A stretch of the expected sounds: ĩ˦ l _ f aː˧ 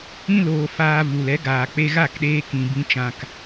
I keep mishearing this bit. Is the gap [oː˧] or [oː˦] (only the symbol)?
oː˧